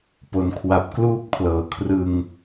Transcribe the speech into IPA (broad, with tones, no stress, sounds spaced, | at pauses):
p o˩˦ n kʰ w a˨˩ p̚ k l uː˥˩ k̚ pʰ l ɤː˩˦ kʰ r ɯ˧ ŋ